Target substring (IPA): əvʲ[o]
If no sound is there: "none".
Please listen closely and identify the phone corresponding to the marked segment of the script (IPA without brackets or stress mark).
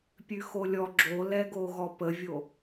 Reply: o